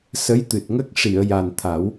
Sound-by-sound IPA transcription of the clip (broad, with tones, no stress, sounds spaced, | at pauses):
s ə˧˥ j t̪ ɨ˨˩ t̚ ŋ ə˦˥ k̚ ʂ i˨˩˨ ə̯ j a˨˩ n t̪ʰ a˨˩˦ w